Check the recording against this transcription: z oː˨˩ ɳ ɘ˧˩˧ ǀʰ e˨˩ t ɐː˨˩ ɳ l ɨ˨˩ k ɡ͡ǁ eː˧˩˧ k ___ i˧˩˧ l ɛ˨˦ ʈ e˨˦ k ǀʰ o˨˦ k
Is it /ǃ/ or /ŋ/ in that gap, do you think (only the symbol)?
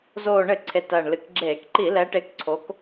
ǃ